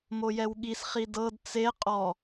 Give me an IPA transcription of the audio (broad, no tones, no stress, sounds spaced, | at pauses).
m o j ɛ w ɠ i s χ i d ɤ d t͡s e qʼ ɔ